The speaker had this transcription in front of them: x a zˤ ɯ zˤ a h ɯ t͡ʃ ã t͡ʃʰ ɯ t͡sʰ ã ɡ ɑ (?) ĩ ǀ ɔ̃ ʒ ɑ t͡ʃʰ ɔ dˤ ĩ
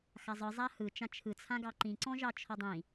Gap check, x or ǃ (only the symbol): ǃ